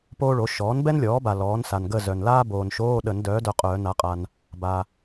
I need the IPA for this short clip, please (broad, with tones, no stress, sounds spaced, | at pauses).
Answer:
p oː˥ ɭ o˩˥ ʃ ɔː˩˥ n b ɛ˥ n lʲ ɔː˩˥ b a˨ l ɔː˩˥ n s a˨ n ɡ ə˥˨ z œ˨ n l aː˥ b oː˨ n ʃ oː˧˥˧ ɗ ə˨˩˦ n d œː˩˥ d œ˨ qʼ œː˨˩˦ n a˩˥ qʼ a˨ n | b a˨